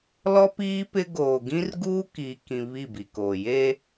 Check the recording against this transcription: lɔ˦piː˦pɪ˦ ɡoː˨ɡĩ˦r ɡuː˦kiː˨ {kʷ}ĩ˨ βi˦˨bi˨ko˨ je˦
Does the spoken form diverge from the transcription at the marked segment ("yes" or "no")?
yes